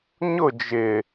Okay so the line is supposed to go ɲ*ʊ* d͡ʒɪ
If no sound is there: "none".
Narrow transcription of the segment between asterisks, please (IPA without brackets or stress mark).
ʊ